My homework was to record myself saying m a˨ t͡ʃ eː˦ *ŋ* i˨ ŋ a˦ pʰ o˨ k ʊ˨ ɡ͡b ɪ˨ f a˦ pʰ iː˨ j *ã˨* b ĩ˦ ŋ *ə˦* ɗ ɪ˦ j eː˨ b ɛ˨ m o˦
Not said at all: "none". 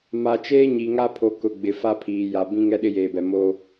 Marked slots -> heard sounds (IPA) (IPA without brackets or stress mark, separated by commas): ɲ, a˨, ɛ˦